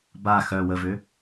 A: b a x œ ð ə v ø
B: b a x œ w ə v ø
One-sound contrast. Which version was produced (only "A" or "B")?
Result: B